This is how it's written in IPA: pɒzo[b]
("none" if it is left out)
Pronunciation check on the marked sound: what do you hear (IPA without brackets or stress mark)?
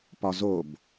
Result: b